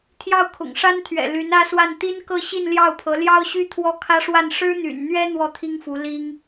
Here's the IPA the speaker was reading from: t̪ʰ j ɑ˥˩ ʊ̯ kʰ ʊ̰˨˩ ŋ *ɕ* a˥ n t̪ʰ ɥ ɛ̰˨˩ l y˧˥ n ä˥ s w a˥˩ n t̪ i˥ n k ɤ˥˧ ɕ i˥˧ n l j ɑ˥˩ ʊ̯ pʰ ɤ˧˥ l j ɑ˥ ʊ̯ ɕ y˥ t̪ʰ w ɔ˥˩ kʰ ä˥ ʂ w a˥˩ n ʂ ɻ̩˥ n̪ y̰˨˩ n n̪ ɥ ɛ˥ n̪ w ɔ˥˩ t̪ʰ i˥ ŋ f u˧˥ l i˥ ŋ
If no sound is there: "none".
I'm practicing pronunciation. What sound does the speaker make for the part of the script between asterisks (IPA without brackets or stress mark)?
ʂ